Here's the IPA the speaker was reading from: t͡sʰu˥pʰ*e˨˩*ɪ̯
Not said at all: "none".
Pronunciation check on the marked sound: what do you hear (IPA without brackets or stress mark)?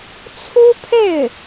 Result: e˥˩